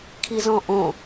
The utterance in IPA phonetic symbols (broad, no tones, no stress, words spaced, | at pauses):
kʰizɔ̃ʔõ